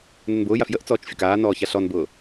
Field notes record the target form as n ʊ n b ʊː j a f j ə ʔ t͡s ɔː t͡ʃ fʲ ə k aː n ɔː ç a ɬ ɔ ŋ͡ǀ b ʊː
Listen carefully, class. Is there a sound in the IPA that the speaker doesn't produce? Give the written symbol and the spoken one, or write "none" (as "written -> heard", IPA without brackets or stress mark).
ŋ͡ǀ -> n